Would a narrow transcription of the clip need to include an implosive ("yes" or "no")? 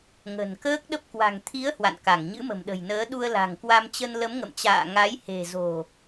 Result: yes